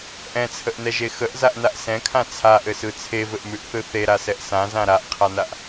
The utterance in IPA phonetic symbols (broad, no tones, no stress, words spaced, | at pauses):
ʔɛ̃t͡sʰəʔnɛʒe xəʔzaʔnaʔ sɛ̃kʰã t͡sʰaʔɘsɯ t͡sʰevɘʔmʉʔθɯ θeɾasɛʔ sãzã ɾaʔqʰanaʔ